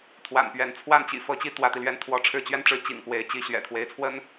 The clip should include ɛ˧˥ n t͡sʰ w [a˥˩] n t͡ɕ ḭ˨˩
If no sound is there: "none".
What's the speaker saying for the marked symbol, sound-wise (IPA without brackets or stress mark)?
a˥˩